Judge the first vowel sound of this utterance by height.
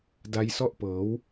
low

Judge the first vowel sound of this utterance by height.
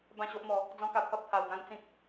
low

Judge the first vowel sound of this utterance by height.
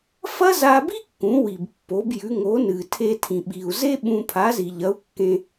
low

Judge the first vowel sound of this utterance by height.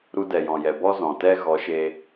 high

